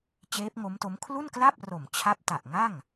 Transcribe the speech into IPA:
t͡ɕeː˦˥p̚ŋo˦˥mto˦˥m kʰlu˥˩nkla˥˩p̚ ro˨˩mt͡ɕʰa˦˥p̚ta˨˩ʔ ŋa˥˩ŋ

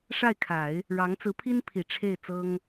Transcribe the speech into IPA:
ʂa˥˩ɪ̯kʰa˨˩˦ɪ̯ | ɻɑ˧˥ŋ t͡sɹ̩˧˥pʰi˥npʰi˨˩ ʈ͡ʂʰe˥˩ɪ̯t͡sɤ˥ŋ

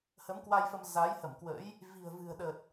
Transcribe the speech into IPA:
hə˨˦mkwa˧jfə˧m za˨˦jhə˧˩mkwə̰˧˥j | vi̤˨˩ə̯vɨ̤˨˩ə̯ɗə˨˩t̚

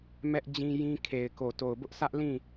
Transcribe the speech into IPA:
mɛ˦ʔd͡ʑĩ˦jĩ˦kʰe˨ɪ̯ ko˨to˨ʊ̯bʊ˦ʔ sʰä˦ʔlĩ˦˨

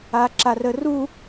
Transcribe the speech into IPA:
aǁarəru

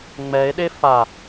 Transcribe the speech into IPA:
ŋ͡mɛe̯ɗe fa

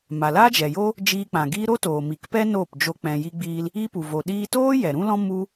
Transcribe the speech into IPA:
ma˨laː˦d͡ʒɛ˨jo˦ | d͡ʒiː˧k͡pã˨ɡiː˦ ɾo˦toː˨mi˨kpɛ˦ noː˦˨pd͡ʒo˧ k͡pɛ̃˨ji˧ɡ͡biː˧l | i˦pu˨ vo˨ɗiː˧toː˦ jɛ˨ɾũ˦lɔ̃˦ mu˦

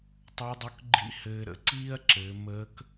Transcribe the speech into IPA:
tˤə˞˧˥dˤo˧˥k ɡ͡ǃḭ˧˥ hɘː˧ɾə̰˩ ǀiː˥ɐ̯ǁɘː˩˧ məː˧˥k

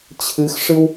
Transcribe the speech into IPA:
t͡ɕʰɨxʂɨw

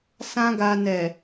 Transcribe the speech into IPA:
sã˦ɡa˧ nɛ˨

